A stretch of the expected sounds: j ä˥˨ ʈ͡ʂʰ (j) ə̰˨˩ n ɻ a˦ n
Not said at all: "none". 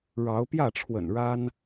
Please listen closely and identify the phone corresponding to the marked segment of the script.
w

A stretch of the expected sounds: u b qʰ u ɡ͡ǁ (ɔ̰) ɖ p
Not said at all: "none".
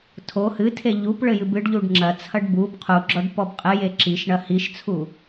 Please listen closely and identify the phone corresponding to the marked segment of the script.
ɔ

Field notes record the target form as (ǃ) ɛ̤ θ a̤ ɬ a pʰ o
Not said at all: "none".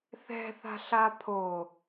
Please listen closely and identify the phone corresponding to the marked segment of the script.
θ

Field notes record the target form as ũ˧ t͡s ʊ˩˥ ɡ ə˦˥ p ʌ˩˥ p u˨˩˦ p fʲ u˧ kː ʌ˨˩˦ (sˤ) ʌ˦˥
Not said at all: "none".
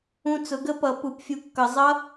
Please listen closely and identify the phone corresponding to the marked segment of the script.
zˤ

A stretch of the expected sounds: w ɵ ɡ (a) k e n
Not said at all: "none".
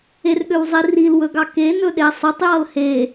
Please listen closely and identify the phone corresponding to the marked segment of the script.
ɑ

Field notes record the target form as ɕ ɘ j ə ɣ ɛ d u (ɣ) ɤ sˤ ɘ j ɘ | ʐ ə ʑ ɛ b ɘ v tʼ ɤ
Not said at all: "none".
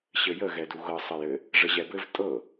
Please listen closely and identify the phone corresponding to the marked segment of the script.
ɣ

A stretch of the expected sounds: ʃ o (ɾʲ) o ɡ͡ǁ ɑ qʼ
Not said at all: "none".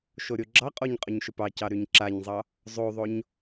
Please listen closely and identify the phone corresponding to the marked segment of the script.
ɾʲ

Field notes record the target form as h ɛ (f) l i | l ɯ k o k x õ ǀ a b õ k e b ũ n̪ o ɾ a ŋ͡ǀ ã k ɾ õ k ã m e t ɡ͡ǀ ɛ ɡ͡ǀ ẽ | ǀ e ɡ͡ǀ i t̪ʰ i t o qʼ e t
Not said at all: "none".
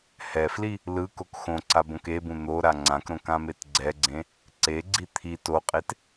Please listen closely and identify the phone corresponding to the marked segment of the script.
f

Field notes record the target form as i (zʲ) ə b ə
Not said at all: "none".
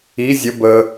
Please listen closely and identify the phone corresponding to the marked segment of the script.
zʲ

